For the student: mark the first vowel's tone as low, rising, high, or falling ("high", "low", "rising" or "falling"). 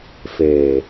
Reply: low